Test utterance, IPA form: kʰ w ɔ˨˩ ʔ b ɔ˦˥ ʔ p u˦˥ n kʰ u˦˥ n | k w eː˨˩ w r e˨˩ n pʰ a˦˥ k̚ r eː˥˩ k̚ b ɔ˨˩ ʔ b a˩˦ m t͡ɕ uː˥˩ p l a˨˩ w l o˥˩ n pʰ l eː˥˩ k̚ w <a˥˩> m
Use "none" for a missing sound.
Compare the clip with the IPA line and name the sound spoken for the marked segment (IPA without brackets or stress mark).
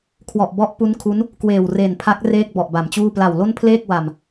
a˨˩